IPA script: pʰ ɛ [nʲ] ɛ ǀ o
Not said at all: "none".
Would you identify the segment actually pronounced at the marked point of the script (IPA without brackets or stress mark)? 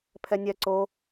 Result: nʲ